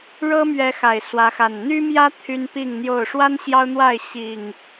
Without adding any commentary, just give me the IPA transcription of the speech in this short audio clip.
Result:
ɻɤ˦mɥɛ˨˦ xa˨˩ɪ̯swä˨˦xa˨˩n n̪y˦mjä˦ t̪ʰy˦npi˥˨ŋn̪jo˥˨ʊ̯ ʂwa˦n ɕjɑ˦ʊ̯n̪wa˥˨ɪ̯ ɕi˨˩ŋ

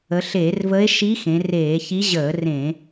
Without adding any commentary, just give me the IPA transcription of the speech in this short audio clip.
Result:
ə˩˧ɬeː˧˩˧rvə˧˥e̯ʃi˧˥ xẽ˩˧reː˧˩˧çi˧˥ ʑəː˧˩˧rẽ˧˩˧

